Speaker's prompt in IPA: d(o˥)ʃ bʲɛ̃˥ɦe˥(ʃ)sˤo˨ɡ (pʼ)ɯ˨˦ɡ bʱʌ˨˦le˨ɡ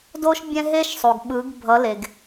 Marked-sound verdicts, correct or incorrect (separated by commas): correct, correct, incorrect